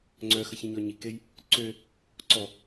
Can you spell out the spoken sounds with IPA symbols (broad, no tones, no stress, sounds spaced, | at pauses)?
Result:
ŋ͡ǀ œ x ə ç ĩ ɲ ɔ ɲ i k e j | ǀ ø | ǀ ɔ